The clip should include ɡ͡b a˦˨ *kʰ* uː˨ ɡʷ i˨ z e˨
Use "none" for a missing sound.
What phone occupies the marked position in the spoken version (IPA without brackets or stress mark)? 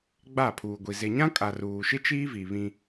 pʰ